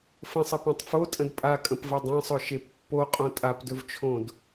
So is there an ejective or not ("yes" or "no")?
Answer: yes